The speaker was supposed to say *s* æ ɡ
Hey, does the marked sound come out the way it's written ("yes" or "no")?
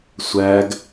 no